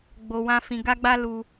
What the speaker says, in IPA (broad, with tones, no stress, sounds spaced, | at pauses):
ɡ͡b o˧ w ã˦ f ĩ˧ ɡ a˦ ɡ͡b a˦ l u˧